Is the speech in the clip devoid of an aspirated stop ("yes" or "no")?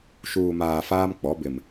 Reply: yes